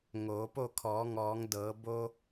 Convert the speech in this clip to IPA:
ŋoː˩˧po˥˨ kʰɔː˩˧ŋɔː˩˧ŋ dɤː˩˧bo˧

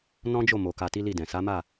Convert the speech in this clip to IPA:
nɔ̃˦d͡ʒo˦˨ mo˨ ka˧ti˦li˦˨dɛ̃˨ sa˨˦ma˦˨

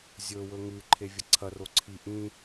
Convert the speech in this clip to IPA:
zʲɵwɵ ŋʉǃʰe vʲɐǀʰɐro ǀʰi ʔĩ

